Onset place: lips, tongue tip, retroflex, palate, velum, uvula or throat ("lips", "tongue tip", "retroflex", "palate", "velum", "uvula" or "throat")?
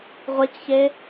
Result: uvula